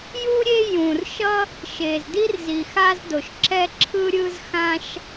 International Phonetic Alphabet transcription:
ju˥ɾʲe˥ jũ˩rʃʌ˥ | ʃe˩zdi˥r zi˩xa˥zdo˩ʃǁɛ˥ ǁʰɯ˥ɾʲɯ˥zxã˥ʃ

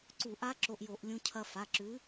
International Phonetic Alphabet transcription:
ǀu˧˩˧ʔa˦˥ ǁo˧ʔjo˧˩˧ʔ lʲũ˧cʰɐ˧ fa˩˧˩ǁʉ˨˥

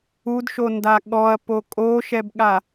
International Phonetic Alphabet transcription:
udʃonda ɠɔɐ̯po kʼoʃɛbɠa

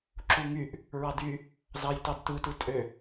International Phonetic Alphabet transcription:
ǁuŋyʔ | ɹɑdy | zɑjtɑdtɯtɯ tʼø

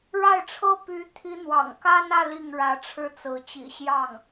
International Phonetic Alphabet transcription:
ɻa˥˩ɪ̯ʈ͡ʂʰɤ˥ py˧˥ t̪ʰi˧˥n̪wɑ̰˨˩ŋka˥nä˥˧ li˥˩ŋɻä˧˥ʈ͡ʂʰɻ̩˥t͡sɹ̩˧˥ t͡ɕḭ˨˩ɕjɑ˥˩ŋ

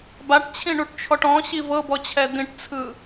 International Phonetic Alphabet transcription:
baʈt͡ɕʰĩɳuʈt͡ʃʰɔʈ ɔ̃ɕi vɤbɔt͡ɕʰɛ d̪ĩʈt͡sʰɯ

